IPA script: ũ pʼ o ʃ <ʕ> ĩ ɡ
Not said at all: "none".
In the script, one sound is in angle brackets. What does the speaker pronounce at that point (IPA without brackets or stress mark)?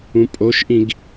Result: ʔ